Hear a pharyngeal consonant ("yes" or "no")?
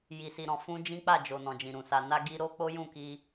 no